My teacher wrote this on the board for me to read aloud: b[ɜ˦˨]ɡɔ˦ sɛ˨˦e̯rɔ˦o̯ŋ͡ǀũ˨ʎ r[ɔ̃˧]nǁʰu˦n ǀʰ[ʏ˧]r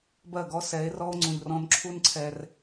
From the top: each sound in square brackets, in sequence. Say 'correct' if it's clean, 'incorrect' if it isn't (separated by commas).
correct, correct, incorrect